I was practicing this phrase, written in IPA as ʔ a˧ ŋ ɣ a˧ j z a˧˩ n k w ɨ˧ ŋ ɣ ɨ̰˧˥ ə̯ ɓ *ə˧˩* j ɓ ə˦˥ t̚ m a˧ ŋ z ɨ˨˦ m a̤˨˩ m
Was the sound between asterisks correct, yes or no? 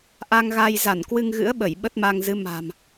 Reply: yes